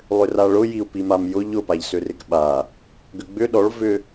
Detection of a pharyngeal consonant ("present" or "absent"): absent